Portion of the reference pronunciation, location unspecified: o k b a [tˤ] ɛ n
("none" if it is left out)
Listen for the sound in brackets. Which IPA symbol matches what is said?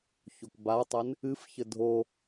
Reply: tˤ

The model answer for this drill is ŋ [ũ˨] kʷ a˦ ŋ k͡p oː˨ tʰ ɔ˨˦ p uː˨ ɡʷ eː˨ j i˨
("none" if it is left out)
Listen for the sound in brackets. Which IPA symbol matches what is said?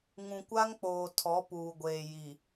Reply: ũ˨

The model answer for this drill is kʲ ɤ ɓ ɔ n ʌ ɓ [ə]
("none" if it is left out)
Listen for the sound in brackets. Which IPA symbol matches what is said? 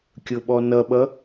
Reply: ʌ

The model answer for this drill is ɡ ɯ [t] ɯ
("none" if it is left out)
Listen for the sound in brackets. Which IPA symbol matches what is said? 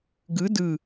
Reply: d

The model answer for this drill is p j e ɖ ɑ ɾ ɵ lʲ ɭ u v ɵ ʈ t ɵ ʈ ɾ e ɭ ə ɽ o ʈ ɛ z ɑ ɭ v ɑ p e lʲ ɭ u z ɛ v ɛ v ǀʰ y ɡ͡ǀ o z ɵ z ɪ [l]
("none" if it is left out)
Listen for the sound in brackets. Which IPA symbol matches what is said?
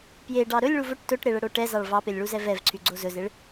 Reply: ɭ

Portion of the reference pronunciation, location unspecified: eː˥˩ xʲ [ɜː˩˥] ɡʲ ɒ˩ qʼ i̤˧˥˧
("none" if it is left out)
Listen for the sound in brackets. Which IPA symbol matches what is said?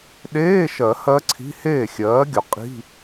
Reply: ɜː˩˥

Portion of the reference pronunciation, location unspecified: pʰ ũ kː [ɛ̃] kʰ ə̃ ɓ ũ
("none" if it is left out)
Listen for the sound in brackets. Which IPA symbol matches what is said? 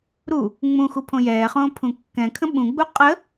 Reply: ɛ̃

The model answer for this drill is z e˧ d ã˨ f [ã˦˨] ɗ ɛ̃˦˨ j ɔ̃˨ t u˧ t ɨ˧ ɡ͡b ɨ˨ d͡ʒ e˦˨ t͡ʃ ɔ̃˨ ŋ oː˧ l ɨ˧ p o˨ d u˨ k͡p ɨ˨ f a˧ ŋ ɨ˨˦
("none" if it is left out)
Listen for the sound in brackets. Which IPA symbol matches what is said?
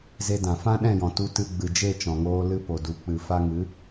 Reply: ã˦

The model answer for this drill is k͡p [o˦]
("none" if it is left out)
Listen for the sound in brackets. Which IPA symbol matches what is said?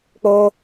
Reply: o˦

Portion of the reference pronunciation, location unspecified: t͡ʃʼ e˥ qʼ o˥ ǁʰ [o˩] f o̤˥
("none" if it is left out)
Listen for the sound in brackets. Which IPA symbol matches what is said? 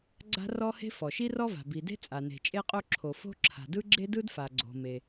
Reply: o˩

